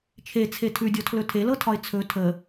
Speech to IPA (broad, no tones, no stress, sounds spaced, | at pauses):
t͡ʃʰ e t͡sʰ e tʰ ʉ dʲ ɔ tʰ l ɵ tʰ e l ɤ tʰ ɒ ɪ̯ t͡sʰ ɵ tʰ ə